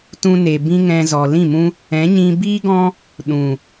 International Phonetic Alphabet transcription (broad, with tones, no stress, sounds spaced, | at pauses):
t ũ˧ n e˨ b ĩ˦ ŋ ɛ̃˧ z ɔ˨ l ĩ˦˨ m ũ˦ | ɛ̃˨˦ ɲ ĩ˧ b iː˦ ɡ ɔ̃˦ | ɗ ũ˨